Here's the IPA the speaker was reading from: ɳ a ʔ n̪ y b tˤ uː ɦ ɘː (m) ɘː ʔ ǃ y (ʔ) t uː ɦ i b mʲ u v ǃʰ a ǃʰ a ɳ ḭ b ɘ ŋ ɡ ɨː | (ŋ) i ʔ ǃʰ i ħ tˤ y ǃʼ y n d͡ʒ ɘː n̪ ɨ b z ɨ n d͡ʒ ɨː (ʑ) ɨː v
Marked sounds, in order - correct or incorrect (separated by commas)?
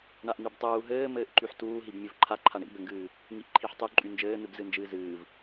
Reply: correct, incorrect, correct, incorrect